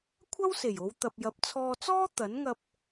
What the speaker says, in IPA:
kʷʰ ɐ˥ w s e˨˩ j o˨˧ w t̪ ɐ˨ p̚ j ɐ˨˥ p̚ t͡sʰ ɔː˧ t͡s ɔː˥ t̪ ɐ˨˥ n ŋ ɐ˧ p̚

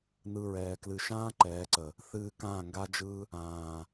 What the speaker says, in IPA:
n ɯ˧ ɹ ɛː˨ k l ɨ˨ ʃ ãː˦ ǃ ɛː˨˦ ǀ ə˨ | θ ɨː˧ k ãː˦˨ ŋ ɡ a˦ d͡ʒ ɯ˦ | ãː˨

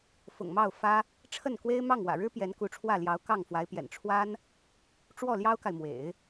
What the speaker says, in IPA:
f ʊ̰˨˩ ŋ m ɑ˥˩ ʊ̯ f ä˥ | ʈ͡ʂʰ ə˥˩ n k w e˥ ɪ̯ m ɑ˥˩ ŋ w ä̰˨˩ ɻ ɻ̩˥ p j ɛ˧˥ n k u˧˥ ʈ͡ʂʰ w ä˥˩ l j ɑ˧˥ ʊ̯ k ɑ˥˩ ŋ f w a˧˥ ɪ̯ p j ɛ̰˨˩ n ʈ͡ʂʰ w a˥ n | ʈ͡ʂ w ɔ˥˩ l j ɑ˥ ʊ̯ k a˨ ɪ̯ m w ḛ˨˩˦ ɪ̯

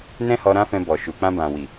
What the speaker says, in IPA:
n ɛ̃˦ h ɔ˧ ɾ ã˦ f ɛ̃˧ b ɔ˨ ʃ u˨ k͡p ã˧ b ã˨ w i˨

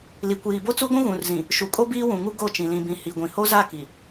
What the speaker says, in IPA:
l i˨ kʷ iː˨ b o˦ t͡s u˦ ɡʷ ũ˦ ɣ ũ˨ r z ĩ˨ | ʃ u˨ kʼ o˦ b iː˦ w ũ˨ ŋ u˦ ɡ o˦˨ t͡ʃ ĩ˨ l ĩ˨ b ĩ˨ h i˨ ɡʷ ĩ˨ h o˦ z a˦˨ k i˨

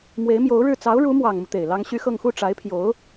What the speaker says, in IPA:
m w e˧˥ ɪ̯ m j o˧˥ ʊ̯ ɻ ɻ̩˥˩ t͡s ɑ˧˥ ʊ̯ ɻ u˧˥ m w ɑ˨˩ ŋ m u˦ t̪ e˨˩ ɪ̯ l ɑ˥ ŋ ɕ y˥ x ɤ˥˧ ŋ x u˥˩ ʈ͡ʂ a˧˥ ɪ̯ pʰ j o˧˥ ʊ̯

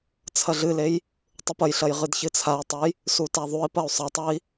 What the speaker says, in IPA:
t͡sʰ ɐ ɮ ɨ l e j | tˤ u p ɐ j ɬ ɐ j ʁ ɨ d ç ɨ t͡sʰ a i̯ tˤ ɘ j | s u t a ðˤ u i̯ p ɐ u̯ sˤ ɐ tˤ ɐ i̯

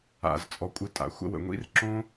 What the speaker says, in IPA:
a̰˨ z t͡sʼ ɔ˧ kʷʼ ɨ˧ tʼ a̰˨ xʷ ə̰˧ w ə̰˨ ŋʷ ḭ˦ r ǁ õ˦

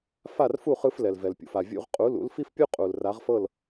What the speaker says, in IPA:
f a˥˩ r f u˥˩ χ ɯ˧ f l ɛ˩ l v ɛ˩ l pʲ ṵ˩ f a˩ vʲ ṵ˧ ʁ qʼ u˩˥ l ṵ˩˥ l f i˥ f pʲ u˥ qʼ u˩ l r a˩˥ ʁ f ɤ˥˩ l

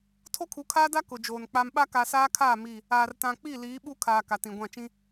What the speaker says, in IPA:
tʰ o˦ kʰ u˨˦ kʰ aː˦ d a˦ k ʊ˨ d͡ʒ oː˨ n k͡p a˨ m ɓ a˦ k a˨ s aː˦ kʰ aː˦˨ m i˦˨ | aː˨ r t ã˨ k͡p i˦˨ l iː˨˦ ɓ u˦ kʰ aː˨ k a˨ t ĩ˨ ɡʷ ã˦˨ t͡ʃ ĩ˦

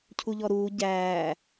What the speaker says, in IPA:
cʰ u ʎ ɔ ɾ uː ɟ æː

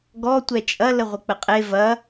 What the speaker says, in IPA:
ɡ ɔ tʷ ɛ t͡ʃʼ ɐ l ə ʁʷ ə k͡p ə qʼ e v ɐ

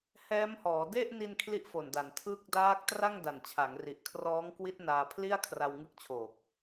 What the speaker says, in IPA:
h ɛː˦˥ m h ɔː˩˦ d e˥˩ ʔ n i˧ n kʰ l i˦˥ ʔ f o˨˩ n d a˩˦ n tʰ ɯ˦˥ k̚ d aː˦˥ k̚ t r a˥˩ ŋ d a˨˩ n t͡ɕʰ a˩˦ ŋ r i˨˩ ʔ kʰ r ɔː˦˥ ŋ k w i˦˥ t̚ n aː˧ pʰ l i˥˩ a̯ kʰ r a˧ w ŋ ɯ˦˥ k̚ t͡ɕʰ oː˨˩ k̚

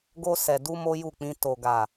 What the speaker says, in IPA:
ɡ o˧ s ɛ˨ d u˧ m o˦ j u˦˨ k͡p ĩ˧ t o˨ ɡ a˨

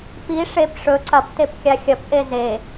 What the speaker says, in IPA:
p i ʂ e p ʂ ɵ ǀ ɐ p t e p kʲ a xʲ ɐ p ʔ e z e

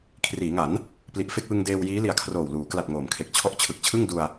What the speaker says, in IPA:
kʰ r iː˩˦ ŋ a˩˦ n | p l i˨˩ ʔ f e˥˩ k̚ w ɯ˧ ŋ d eː˧ w j iː˦˥ l i˨˩ a̯ kʰ r oː˨˩ w l uː˩˦ k l a˨˩ t̚ ŋ oː˨˩ m kʰ e˨˩ k̚ t͡ɕʰ ɔ˦˥ ʔ t͡ɕʰ ɯ˨˩ k̚ t͡ɕʰ ɯ˥˩ ŋ d u˧ a̯

